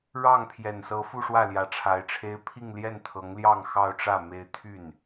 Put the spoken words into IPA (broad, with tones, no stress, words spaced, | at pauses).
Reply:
ɻɑ˥˩ŋ pʰjɛ˨˩nsɤ˧˥ fu˥˧ʂwä˥˩ljä˨˩ ʈ͡ʂʰa˧˥ɪ̯ʈ͡ʂʰe˥ɪ̯ pʰi˥˧ŋljɛ˥˩n t̪ʰɤ˧˥ŋljɑ˥˧ŋ xɑ˥˧ʊ̯ʈ͡ʂä˥˩ me˥ɪ̯ t̪ʰy˥˩n